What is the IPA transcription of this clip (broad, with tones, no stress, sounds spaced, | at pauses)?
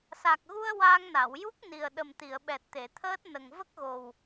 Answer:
s a˨˩ k̚ ɣ u˧ ə̯ w aː˧ ŋ n a˨˩˨ w j u˦˥ k̚ n i˨˩ ə̯ ɗ ə˨˩ m t̪ i˨˩˨ ə̯ ɓ ɛ˨˩ t̚ t̪ e˨˩˨ t̪ʰ əː˦˥ t̚ n ə˨˩ ŋ v ə˦˥ k̚ ɣ o˨˩ w